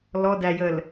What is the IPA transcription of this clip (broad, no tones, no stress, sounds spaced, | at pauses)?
l ɔ d æ j ə l